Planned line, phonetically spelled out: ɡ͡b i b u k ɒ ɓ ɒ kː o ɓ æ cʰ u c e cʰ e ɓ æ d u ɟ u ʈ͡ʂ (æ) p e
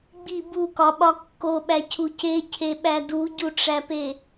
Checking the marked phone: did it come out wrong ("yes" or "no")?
no